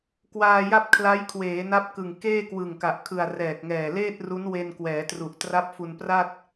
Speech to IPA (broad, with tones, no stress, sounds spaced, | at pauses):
k w aː˧ j a˥˩ p̚ kʰ l a˦˥ j kʰ w eː˩˦ n a˦˥ p̚ k ɯ˨˩ ŋ k eː˥˩ k w ɯ˨˩ ŋ k a˨˩ ʔ kʰ ɯ˨˩ a̯ r ɛː˨˩ k̚ ŋ ɛː˨˩ l eː˥˩ t̚ r u˦˥ n w e˧ n k w ɛː˩˦ t r u˨˩ ʔ t r a˦˥ p̚ f u˧ n p r a˥˩ t̚